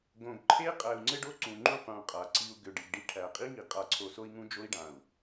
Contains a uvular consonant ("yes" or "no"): yes